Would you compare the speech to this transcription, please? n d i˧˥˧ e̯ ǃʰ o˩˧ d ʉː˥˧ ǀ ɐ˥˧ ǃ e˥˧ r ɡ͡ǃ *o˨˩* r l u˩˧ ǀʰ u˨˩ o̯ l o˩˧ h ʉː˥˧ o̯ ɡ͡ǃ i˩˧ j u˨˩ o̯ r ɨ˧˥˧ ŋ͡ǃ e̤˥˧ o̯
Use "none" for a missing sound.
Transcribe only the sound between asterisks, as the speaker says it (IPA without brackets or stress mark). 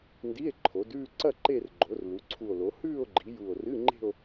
o˩˧